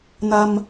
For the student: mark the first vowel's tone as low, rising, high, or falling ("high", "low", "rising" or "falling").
low